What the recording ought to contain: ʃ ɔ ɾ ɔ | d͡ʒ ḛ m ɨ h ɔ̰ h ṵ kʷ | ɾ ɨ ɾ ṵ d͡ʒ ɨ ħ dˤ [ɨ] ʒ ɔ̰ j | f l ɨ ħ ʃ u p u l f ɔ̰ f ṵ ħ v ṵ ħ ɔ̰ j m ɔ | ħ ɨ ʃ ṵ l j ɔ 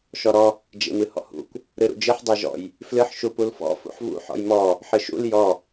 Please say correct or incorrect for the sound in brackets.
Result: incorrect